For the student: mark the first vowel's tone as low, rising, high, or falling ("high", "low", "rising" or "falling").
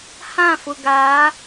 falling